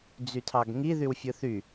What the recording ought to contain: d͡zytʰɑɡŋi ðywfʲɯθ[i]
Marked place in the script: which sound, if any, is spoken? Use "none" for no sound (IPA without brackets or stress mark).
y